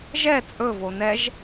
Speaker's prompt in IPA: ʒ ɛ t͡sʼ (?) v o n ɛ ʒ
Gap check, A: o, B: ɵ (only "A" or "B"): B